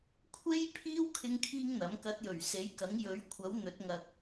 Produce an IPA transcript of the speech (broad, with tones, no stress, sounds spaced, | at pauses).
kʷʰ e˥ j pʰ iː˥ w kʰ ɪ˥ ŋ kʰ iː˥ ŋ n̪ ɐ˨˥ m k ɐ˨˥ t̚ j ɵ˨˩ ɥ s e˨˥ j k ɐ˨˥ ŋ j ɵ˨˥ ɥ kʷʰ ɐ˨˥ w n̪ ɵ˨˥ t̚ ŋ ɐ˧ k̚